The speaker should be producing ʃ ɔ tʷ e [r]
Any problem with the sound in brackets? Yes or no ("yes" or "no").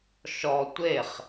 yes